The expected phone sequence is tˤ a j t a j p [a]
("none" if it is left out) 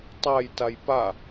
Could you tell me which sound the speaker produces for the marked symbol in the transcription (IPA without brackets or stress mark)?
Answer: a